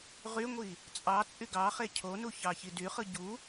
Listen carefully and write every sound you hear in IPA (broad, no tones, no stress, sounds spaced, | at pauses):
ʁ y ŋʷ i | t͡sʼ ɑ t͡sʼ y ɡ ɑ χ e cʰ o n u ç ɑ ç i d y χ ɯ ɟ u